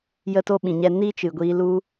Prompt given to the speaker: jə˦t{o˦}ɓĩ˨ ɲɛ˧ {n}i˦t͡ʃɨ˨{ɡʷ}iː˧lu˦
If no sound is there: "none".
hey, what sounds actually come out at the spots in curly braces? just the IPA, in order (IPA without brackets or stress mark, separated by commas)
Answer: o˦, n, ɡʷ